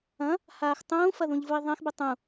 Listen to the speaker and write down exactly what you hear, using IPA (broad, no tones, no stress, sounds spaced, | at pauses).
ɐ̃ | h aː x tˤ ũː f ɐ ð ũ ʎ v u ɪ̯ ðˤ ɛ̃ x b ɛ tˤ ũ